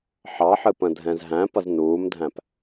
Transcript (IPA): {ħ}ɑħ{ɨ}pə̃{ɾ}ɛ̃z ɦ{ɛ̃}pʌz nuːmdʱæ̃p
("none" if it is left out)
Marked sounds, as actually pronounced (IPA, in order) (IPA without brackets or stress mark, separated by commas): ħ, ɨ, dʱ, æ̃